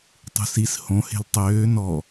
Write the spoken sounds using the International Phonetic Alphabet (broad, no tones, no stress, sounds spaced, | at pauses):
tˤ ṳ s i s h õ h e̤ l tˤ øː n ɔ